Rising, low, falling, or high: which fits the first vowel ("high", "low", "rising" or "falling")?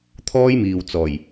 high